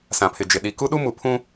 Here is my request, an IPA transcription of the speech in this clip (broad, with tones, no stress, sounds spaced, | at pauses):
s ã˨ pʰ ɪ˨ d͡ʒ ɪ˨ ɗ i˨ k u˦ ɗ u˦ m u˨ pʰ ũ˦